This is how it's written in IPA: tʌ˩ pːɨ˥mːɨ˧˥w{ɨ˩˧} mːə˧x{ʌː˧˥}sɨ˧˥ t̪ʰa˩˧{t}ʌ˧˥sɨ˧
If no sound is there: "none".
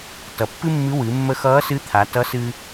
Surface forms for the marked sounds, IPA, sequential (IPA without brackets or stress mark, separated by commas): ɨ˩˧, ʌː˧˥, t